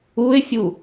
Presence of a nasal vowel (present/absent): absent